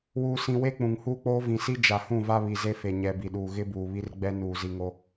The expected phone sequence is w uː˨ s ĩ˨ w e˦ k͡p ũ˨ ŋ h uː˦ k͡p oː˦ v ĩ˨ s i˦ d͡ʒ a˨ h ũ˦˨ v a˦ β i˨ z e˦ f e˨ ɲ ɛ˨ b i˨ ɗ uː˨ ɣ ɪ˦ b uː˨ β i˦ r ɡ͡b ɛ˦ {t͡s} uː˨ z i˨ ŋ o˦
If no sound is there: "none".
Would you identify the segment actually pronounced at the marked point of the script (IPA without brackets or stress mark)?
n